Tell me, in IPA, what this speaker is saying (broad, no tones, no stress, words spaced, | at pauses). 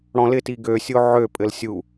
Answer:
ɽɔ̃lɪti ɡøsʲo ʕøpʼɘl sʲu